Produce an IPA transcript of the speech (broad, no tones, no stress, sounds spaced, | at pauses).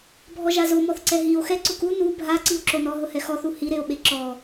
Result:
bʱ ɔ ʒ a z o m ɔ θ ǀ ɛ ɦ i o̯ x ɛ ǀ ʊ k u n u bʱ a ǀ i o̯ ǁ o n ɔ ɦ ʊ h ɛ x ɔ θ u h i ɾ e o̯ ɓ e ǁ ɔ